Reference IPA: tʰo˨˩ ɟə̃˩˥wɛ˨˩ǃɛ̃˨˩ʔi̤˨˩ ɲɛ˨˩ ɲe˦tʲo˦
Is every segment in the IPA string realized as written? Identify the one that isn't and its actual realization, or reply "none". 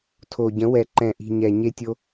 none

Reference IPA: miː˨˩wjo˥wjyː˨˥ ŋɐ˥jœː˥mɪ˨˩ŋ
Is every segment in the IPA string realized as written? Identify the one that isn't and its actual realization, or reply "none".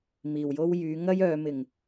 œː˥ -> œː˨˧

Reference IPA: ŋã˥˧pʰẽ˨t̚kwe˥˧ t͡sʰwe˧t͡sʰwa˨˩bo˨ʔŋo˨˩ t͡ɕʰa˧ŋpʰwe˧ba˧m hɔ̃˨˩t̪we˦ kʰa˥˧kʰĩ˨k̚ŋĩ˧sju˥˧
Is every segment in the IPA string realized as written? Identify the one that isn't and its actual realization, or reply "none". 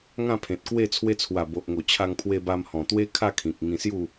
none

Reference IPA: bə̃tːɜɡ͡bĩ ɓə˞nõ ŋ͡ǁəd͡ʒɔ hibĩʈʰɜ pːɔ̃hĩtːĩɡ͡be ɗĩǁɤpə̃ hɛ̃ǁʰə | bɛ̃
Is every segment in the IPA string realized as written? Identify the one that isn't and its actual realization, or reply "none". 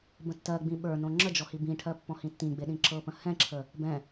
none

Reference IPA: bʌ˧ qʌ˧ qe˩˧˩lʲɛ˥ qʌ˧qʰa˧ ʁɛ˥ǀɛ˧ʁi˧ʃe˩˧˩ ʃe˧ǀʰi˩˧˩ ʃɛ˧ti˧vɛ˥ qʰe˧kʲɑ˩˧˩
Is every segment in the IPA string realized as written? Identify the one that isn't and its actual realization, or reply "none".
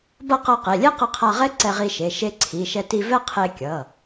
ɑ˩˧˩ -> ʌ˩˧˩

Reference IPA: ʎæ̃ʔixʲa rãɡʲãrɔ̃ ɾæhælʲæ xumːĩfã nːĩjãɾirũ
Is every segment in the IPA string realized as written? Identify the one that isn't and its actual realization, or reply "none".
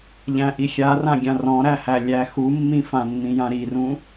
none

